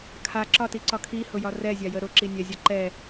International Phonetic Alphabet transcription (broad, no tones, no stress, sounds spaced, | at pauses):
kʰ a ǁ ɒ t i ǀ ɒ kʰ i h ʊ j ɒ r ɛ zʲ a j ə ɾ ʊ ǁ i nʲ ɛ zʲ ɒ ǃ ɛ